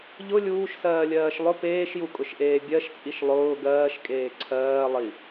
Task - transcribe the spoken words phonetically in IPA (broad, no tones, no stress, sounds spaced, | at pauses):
ʎ ʊ lʲ uː ʃ s ɜː lʲ ɜː ʃ lˠ ʊ p eː ʃ j u kʼ ʊ ʃ ʔ eː bʲ ɜ ʃ t͡sʼ i ʃ lˠ ʊː ɡ ɜː ʃ kʼ eː ǀʰ ɜː lˠ i